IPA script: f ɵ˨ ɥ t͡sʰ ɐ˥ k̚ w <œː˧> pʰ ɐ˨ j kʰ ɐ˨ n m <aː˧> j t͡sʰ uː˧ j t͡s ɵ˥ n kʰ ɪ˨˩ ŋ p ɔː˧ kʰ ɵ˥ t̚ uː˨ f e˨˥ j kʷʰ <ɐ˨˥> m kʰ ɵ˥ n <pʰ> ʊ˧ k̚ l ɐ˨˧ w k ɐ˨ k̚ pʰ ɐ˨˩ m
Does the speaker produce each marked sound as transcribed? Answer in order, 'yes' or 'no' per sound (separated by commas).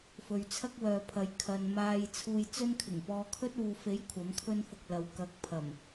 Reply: no, yes, yes, no